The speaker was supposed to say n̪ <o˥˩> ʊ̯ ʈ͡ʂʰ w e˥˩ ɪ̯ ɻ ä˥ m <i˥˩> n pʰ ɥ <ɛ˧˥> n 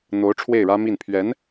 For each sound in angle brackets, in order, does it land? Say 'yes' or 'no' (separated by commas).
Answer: no, yes, yes